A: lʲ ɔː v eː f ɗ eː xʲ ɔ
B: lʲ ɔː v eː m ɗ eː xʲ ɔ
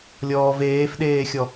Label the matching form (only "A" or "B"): A